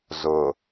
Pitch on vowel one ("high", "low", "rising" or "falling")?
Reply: low